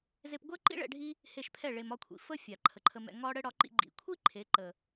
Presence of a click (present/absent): present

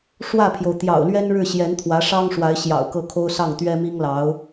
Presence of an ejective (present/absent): absent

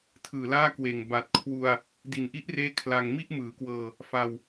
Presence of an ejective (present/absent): absent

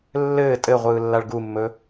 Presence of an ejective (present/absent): present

